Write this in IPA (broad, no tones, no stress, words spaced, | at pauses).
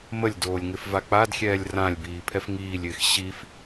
məlʲdoːlʲŋɪfva k͡padxʲɛːlʲ rãlʲbiːpʰɛf ŋiːlʲɪːx ɕif